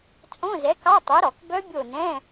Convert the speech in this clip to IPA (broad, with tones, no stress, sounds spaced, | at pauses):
t͡sʼ õ˧˥˧ z ɛ˨˥ k ɑ˧˥˧ tˤ o˨˥ ɾ ɔ˧˩˧ k b œ˦˥ bʲ o˦˨ n ɛ̃˧˥˧